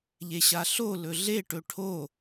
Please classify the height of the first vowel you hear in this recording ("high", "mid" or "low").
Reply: mid